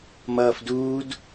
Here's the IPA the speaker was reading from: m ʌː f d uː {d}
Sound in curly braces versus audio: correct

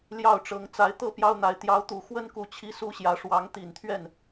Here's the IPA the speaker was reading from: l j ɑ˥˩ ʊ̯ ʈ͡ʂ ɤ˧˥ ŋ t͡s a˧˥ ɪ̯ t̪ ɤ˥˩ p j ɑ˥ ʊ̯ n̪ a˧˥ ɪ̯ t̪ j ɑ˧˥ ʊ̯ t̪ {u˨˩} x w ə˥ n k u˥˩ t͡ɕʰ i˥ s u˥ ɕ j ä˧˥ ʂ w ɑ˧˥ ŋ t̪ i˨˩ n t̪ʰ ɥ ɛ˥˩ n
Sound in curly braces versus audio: correct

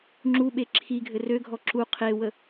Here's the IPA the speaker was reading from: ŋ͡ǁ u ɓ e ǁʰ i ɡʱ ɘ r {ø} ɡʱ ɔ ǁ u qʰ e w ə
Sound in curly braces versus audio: correct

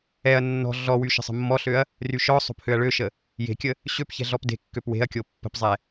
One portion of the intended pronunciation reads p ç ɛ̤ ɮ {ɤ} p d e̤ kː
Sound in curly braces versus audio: incorrect: ɔ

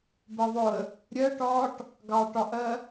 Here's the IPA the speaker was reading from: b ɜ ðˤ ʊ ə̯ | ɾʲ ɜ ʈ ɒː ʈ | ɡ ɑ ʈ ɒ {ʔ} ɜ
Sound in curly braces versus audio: correct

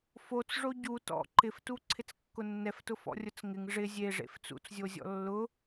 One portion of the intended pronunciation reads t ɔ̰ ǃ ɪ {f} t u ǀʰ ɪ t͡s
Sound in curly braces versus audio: correct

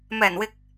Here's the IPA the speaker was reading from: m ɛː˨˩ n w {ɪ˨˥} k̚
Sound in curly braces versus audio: incorrect: ɪ˨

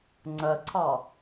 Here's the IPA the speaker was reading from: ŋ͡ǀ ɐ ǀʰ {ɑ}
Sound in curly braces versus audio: correct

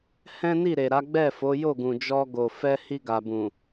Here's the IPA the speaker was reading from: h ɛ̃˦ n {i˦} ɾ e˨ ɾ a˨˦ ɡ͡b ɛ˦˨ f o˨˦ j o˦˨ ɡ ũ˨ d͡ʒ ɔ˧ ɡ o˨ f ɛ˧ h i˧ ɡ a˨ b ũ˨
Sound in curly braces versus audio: incorrect: i˦˨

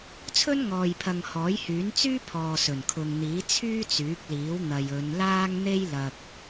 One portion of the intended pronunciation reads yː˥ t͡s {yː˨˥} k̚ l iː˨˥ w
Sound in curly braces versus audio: correct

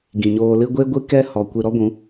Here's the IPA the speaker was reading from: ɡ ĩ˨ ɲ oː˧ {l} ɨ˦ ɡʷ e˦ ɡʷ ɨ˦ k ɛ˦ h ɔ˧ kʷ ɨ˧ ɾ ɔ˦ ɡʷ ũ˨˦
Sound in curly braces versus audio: correct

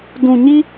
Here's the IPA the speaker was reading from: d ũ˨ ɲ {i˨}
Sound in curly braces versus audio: incorrect: i˦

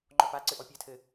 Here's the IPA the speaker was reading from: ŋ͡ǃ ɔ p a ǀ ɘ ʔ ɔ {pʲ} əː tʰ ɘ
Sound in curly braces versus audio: correct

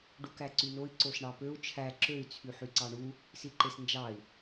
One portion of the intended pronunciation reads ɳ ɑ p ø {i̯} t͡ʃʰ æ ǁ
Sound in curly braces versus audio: incorrect: u̯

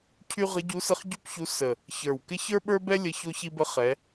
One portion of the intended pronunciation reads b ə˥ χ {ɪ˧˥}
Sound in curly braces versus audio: incorrect: ɛ˧˥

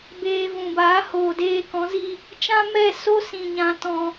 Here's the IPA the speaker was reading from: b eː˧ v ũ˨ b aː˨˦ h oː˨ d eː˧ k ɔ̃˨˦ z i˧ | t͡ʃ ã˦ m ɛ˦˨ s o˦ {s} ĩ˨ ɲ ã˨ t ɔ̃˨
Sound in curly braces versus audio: correct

